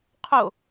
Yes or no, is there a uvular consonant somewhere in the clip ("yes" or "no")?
yes